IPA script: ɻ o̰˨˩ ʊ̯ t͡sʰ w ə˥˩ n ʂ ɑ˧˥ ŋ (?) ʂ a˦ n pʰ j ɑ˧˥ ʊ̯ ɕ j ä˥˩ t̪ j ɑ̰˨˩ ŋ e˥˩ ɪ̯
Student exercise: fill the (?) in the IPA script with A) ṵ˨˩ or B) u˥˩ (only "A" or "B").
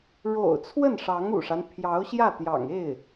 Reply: A